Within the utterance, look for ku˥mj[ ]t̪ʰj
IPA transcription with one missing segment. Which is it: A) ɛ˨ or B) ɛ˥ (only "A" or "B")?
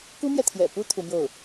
A